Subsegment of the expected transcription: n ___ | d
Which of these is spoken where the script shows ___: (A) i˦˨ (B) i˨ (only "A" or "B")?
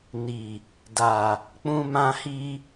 B